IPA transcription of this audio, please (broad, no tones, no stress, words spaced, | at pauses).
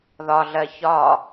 ðɒɮɜ çɒ